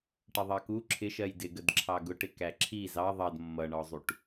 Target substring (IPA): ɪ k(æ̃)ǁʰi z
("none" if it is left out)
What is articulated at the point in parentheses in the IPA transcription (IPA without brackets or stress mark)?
æ